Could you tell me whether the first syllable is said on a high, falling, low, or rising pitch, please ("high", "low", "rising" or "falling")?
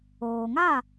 low